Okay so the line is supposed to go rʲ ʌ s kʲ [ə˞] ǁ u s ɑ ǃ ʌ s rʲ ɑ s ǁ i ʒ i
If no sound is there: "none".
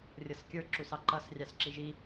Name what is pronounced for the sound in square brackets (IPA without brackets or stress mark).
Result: ə˞